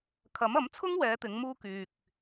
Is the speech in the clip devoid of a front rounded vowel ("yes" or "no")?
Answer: no